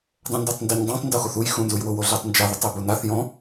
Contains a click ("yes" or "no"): no